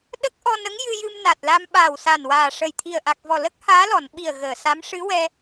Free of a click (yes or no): yes